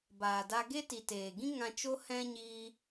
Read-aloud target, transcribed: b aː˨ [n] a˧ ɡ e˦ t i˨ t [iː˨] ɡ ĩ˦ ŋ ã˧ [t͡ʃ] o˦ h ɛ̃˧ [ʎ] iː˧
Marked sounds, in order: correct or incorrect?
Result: incorrect, incorrect, correct, incorrect

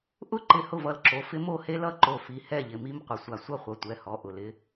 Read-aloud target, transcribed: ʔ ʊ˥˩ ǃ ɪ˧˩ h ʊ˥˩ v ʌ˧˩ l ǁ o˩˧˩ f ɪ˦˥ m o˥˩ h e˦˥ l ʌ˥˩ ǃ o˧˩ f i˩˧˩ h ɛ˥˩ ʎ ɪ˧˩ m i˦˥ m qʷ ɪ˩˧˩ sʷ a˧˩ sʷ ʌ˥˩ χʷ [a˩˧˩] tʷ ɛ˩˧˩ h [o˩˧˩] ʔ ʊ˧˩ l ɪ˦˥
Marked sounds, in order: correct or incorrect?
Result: incorrect, incorrect

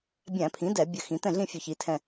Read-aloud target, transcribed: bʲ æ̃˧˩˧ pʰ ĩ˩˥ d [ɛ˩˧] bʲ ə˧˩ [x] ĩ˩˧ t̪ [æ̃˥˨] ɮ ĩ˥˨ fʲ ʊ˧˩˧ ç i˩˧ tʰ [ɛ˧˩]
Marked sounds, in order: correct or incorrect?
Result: incorrect, correct, incorrect, incorrect

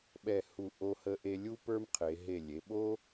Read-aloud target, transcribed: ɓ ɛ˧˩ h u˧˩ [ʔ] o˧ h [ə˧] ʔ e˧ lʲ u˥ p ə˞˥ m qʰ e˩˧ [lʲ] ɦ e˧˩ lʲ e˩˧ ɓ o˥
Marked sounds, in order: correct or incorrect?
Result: correct, correct, incorrect

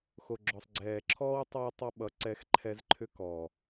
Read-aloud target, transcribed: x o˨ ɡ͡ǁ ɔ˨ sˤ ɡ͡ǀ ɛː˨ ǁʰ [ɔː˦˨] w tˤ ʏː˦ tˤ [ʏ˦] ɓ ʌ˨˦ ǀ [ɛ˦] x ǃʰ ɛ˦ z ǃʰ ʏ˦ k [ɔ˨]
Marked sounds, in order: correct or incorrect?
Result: incorrect, correct, correct, incorrect

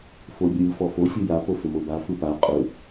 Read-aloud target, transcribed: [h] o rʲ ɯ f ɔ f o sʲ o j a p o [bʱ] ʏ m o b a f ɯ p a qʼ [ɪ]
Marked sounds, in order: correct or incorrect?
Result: incorrect, incorrect, incorrect

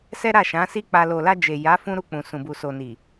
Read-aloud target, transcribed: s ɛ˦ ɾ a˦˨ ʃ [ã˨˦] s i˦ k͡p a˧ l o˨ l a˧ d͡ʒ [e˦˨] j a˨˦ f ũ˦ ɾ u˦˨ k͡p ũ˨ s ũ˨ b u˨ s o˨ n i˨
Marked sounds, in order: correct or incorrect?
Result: correct, incorrect

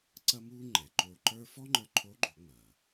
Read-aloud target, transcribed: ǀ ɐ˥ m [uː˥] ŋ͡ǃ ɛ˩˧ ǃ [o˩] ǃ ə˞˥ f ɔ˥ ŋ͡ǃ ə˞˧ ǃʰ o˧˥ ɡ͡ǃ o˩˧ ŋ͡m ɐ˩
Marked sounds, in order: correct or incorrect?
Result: correct, incorrect

